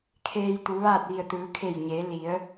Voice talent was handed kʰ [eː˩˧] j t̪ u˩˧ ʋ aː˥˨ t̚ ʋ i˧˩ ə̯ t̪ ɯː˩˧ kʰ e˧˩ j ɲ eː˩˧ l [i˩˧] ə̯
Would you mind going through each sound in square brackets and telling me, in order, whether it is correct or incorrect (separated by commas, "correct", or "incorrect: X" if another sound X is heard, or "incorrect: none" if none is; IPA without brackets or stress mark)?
incorrect: eː˧, correct